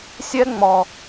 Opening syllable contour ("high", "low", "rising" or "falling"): high